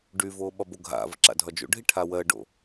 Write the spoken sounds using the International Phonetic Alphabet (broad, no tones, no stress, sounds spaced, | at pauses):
ɖ y v o ɓ ɒ b o ɡʱ a̰ v ə̰ ǁ a̰ dʱ ɒ d͡ʒ o̰ ɖʱ i ʈʰ a w ɜ ɖ o̰